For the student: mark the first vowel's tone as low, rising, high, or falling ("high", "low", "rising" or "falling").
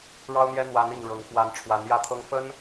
high